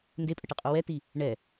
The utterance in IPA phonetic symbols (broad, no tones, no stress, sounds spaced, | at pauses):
n d e pʼ ə ʈ ɨ qʼ o w ɛ t i | ɳ ɛ